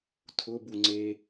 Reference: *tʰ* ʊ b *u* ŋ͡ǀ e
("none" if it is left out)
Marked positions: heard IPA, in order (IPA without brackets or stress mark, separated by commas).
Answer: tʰ, u